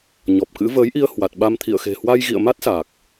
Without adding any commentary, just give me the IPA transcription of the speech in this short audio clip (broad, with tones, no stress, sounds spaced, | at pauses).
ɲ ɔ˨˩ p̚ k ɨ̰˧˥ v əː˨˦ j ʔ i˧ ə̯ h w a˨˩ t̚ ɓ a˧ m t̪ʰ ḭ˧˨ ə̯ x e̤˨˩ h w a˧ j ɣ ḭ˧˨ ə̯ m a˦˥ t̚ s a˨˩ k̚